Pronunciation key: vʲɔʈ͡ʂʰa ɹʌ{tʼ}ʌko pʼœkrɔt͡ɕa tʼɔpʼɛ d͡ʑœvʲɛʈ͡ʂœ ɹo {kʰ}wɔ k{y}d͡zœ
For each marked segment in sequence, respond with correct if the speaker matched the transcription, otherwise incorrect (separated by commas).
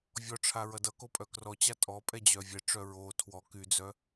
incorrect, incorrect, correct